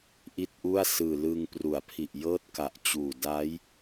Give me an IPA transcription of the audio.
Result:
ʔ i˥˩ t̚ ʔ u˥˩ a̯ s ɯː˨˩ l ɯː˧ ŋ p r u˩˦ a̯ pʰ i˨˩ ʔ j ɤː˥˩ t̚ k a˨˩ ʔ t͡ɕ uː˨˩ d a˦˥ j

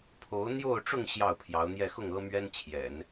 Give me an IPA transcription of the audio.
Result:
pʰ o˧˥ ʊ̯ n̪ j o˥˧ ʊ̯ ʈ͡ʂ ʊ˥˧ ŋ ɕ j ɑ˥˩ ʊ̯ pʰ j ɑ˧˥ ʊ̯ n̪ j ɛ˥˧ x ʊ˥˩ ŋ ɤ˥ m ɥ ɛ˥ n t͡ɕʰ j ɛ̰˨˩˦ n

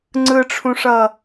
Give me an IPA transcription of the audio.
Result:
ŋ͡ǀ ɯ ʈ͡ʂʰ ũ ʂ ʌ

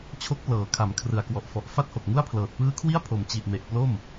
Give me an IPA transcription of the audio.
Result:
t͡ɕʰ o˦˥ k̚ p l ɤː˩˦ kʰ a˩˦ m kʰ r ɯ˨˩ a̯ k w ɔ˨˩ ʔ f ɔ˨˩ ʔ f a˥˩ t̚ h o˨˩ k̚ ŋ u˥˩ a̯ pʰ l ɤː˨˩ t̚ p ɯː˦˥ kʰ w i˥˩ a̯ pʰ o˨˩ m t͡ɕ i˨˩ ʔ m e˨˩ ʔ p l o˥˩ m

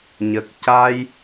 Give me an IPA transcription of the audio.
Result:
ɲ ə˨˩ k̚ c a˧ j

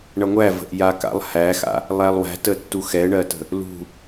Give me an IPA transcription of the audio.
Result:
ɳ ʌ ŋʷ æ v ə̤ ʔ j a k a̰ lˠ h æ x a̰ | lˠ æ lˠ w æ̤ t ə tː u x ɛ ɳ ɜ t ə̤ | l ṳ

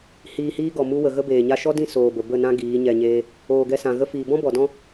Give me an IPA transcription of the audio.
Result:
h iː˧ h iː˦ ɡ ɔ˨ m u˧ w ə˨ ɣ ə˦ b eː˨ ɲ a˦ ʃ ɔ˦ d ĩ˦˨ s oː˨ b ə˨ b ə˦˨ n ã˦ ɡ iː˨˦ ɲ ɛ˨ ɲ eː˧ | oː˨ ɡ ɛ˧ s ã˨ ɣ ə˧ f iː˨ b ɔ̃˦ b ɔ˨ d ɔ̃˦

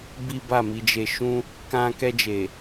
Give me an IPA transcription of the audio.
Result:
b i˦ b a˦˨ m i˧ d͡ʒ e˦ ʃ ũ˦ | k ã˧ k ɛ˧ d͡ʒ e˨

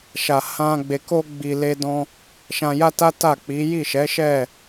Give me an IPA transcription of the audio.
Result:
ʃ a˨ h ã˧ ɡ͡b e˨ k o˧ ɡ͡b i˨ l e˧ d ɔ̃˧ | ʃ ã˧ j a˦ t a˦ t a˦˨ k͡p i˨˦ j i˦˨ ʃ ɛ˨˦ ʃ ɛ˦˨

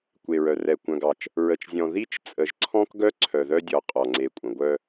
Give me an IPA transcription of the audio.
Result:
kʷ e˨ ɹ œ˨ r ɛ˨ kʷ œ̃˨ ɡ ɑ˨ t͡ʃ | ɹ ə˨ t͡ʃ zʲ ɔ̃˨ ð i˦ t͡ʃ t͡sʼ ə˨ ʒ ǀʰ ɔ̃˦ k ɡ œ˦ ǀʰ œ˨ ð œ˦ dʲ ɔ˨ qʼ ɔ˨ ŋ͡ǀ e˨ kʷʼ ə̃˨ ɡʷ œ˦

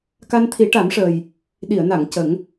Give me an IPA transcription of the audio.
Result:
k a˧ n t̪ʰ i˨˩˦ ʈ a˨˩˦ m ʂ əː˨˩ j | ɗ i˨˩˨ ə̯ n a˨˩˨ ŋ c ə˨˩˦ ŋ

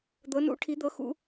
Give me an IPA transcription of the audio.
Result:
d̪ ɤ˧˥ n ṵ˧˥ ʈʰ i˧˥ d̪ ɤ˧˥ x ṵ˧˥

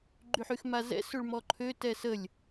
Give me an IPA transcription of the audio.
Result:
ɡ͡ǃ y ħ y x m a z ɛ̰ s ø ɭ m ɔ ǃʰ ø t ɛ s ə lʲ

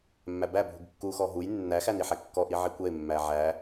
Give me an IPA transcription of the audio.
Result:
mː æ b æ bʱ u ɡ kː u x ɔ ɦ u j nː æ x æ n i ħ æ kː ɔ ʔ i ʕ i kʷ ɛ ɪ̯ mː æ ʕ æ

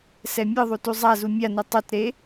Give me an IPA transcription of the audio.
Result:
s ɛ mʲ ɯ ðˤ u t u zˤ a z u mʲ a n u tˤ u t ɾ e

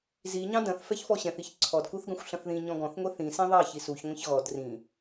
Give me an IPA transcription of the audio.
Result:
z i ɲ ɑ̃ d ɐ̃ θ f ɛ ç f ɔ ɕ ɛ̃ θ i ç ǀʰ ɔ d k u θ ɡ ɐ̃ xʷ ɬ ɐ̃ θ ð ĩ ɲ ɔ̃ ɡ ɔ̃ θ ŋʷ e θ ĩ s ẽ ðˤ ɑ ç i s u ç ŋʷ ɛ̃ ç ɣ ɔ d r ĩ

